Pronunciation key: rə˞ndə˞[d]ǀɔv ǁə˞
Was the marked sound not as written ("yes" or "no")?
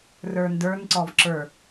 yes